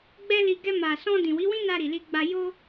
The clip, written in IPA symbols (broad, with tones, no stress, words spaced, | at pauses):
ɡ͡bɛ˦li˧ ɡɛ˧ma˨sɔ̃˧ dĩ˨wi˨˦wĩ˦na˧ ɾi˨li˧ɡ͡ba˧ jo˦